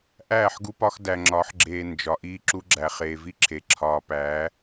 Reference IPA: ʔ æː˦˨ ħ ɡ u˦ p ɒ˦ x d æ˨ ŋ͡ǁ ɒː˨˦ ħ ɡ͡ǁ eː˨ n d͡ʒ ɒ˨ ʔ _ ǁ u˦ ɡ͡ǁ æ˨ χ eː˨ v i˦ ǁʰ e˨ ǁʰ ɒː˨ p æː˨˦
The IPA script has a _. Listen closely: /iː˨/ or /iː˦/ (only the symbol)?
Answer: iː˦